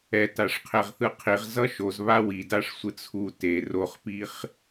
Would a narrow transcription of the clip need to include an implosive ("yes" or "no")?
no